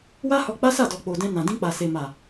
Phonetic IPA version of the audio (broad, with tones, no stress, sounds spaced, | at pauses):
w a˦ h ɔ˧ k͡p a˦ s a˦˨ d ɔ˨ k͡p o˨ d ɛ̃˧ n ã˨ d ĩ˧ k͡p a˨ s e˨ m a˨